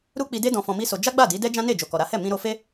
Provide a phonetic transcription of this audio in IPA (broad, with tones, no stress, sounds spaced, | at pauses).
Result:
ɾ u˦ k͡p i˧ d e˦ d ɔ̃˧ f ɔ̃˧ m i˦ s o˧ d͡ʒ a˦ ɡ͡b a˦˨ d i˨˦ d ɛ˦ d͡ʒ ã˦ n e˦˨ d͡ʒ o˨ k ɔ˨ ɾ a˨˦ h ɛ˦˨ m ĩ˧ ɾ o˧ f e˦